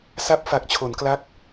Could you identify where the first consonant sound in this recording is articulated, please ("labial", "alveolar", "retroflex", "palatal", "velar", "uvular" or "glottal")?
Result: alveolar